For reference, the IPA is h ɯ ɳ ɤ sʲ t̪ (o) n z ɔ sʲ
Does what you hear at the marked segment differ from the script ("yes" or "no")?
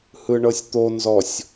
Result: no